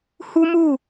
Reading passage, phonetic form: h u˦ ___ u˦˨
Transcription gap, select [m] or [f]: m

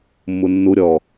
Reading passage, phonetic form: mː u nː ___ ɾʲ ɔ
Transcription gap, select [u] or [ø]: u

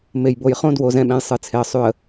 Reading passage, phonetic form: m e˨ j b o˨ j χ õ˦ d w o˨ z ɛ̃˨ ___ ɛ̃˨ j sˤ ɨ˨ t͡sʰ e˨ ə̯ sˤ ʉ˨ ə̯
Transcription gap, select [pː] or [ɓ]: ɓ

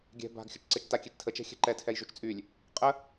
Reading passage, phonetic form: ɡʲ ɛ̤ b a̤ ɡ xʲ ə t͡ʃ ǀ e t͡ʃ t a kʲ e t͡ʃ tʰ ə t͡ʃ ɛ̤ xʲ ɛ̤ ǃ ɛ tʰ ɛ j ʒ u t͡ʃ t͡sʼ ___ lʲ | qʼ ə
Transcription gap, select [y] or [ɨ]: y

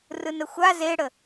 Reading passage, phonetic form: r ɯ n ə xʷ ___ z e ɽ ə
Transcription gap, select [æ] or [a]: a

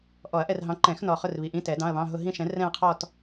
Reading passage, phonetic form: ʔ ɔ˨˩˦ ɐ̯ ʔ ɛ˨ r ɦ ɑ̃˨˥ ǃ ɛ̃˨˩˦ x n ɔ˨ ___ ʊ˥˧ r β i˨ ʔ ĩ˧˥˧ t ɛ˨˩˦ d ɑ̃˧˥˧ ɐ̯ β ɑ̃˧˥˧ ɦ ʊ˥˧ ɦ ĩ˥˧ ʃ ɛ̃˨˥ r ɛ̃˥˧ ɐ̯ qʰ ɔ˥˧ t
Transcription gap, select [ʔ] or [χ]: χ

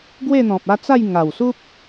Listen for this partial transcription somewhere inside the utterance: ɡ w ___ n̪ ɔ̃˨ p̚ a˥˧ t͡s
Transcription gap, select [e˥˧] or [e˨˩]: e˥˧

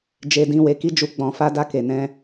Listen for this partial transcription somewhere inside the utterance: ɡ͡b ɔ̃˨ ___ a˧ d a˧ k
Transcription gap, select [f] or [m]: f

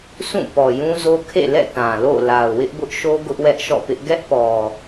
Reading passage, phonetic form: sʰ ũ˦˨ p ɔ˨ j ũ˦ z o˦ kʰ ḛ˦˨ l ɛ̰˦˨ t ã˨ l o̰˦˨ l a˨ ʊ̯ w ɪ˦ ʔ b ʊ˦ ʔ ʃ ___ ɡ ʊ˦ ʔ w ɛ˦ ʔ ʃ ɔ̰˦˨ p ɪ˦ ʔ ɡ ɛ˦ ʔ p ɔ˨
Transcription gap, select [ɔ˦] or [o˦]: o˦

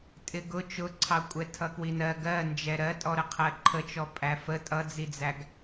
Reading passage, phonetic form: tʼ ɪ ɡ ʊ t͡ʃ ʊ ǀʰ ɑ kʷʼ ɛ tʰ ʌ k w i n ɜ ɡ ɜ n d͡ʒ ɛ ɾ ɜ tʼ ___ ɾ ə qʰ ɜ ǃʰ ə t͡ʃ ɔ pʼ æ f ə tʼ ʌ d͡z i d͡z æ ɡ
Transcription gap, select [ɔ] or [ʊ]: ɔ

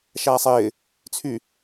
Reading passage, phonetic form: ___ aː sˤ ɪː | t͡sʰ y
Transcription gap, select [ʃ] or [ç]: ʃ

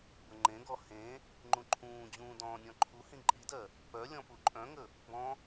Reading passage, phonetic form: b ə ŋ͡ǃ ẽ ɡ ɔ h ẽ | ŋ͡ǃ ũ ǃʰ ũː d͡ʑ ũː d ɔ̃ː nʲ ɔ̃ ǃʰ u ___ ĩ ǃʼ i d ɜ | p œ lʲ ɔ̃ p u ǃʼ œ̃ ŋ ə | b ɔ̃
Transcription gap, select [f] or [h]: h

